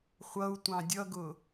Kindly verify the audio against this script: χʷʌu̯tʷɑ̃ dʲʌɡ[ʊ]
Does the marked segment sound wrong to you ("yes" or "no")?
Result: no